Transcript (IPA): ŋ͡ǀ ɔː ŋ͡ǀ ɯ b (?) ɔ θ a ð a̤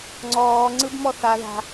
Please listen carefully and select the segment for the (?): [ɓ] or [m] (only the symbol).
m